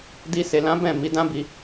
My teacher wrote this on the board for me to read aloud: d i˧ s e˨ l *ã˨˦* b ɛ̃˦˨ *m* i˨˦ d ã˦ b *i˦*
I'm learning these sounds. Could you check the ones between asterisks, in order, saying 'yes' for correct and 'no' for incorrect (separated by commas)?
yes, yes, no